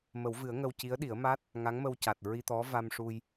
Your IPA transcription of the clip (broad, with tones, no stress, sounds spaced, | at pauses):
m ə˨˩˦ w v ɨ˨˩˦ ə̯ ŋ ə˧ w c i˧˥ ə̯ ɗ i˨˩˦ ə̯ m a˦˥ t̚ | ŋ a˧˥ ŋ m ə˧ w c a˨˩ t̚ ɹ i˧ t̪ ɔ˧˥ v a˧ m ʂ u˧ j